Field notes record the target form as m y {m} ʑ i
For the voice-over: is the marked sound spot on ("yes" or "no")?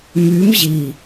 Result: yes